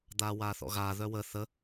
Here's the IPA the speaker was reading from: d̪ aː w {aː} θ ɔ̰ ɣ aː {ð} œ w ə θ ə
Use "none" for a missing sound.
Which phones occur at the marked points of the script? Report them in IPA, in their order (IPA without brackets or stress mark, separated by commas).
aː, ð